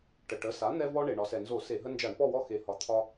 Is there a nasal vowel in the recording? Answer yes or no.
no